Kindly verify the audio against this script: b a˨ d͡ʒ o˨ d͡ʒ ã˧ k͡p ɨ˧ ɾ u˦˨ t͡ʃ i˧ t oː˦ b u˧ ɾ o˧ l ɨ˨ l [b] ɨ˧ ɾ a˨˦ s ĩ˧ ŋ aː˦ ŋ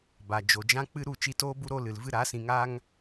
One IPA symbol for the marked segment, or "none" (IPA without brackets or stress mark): v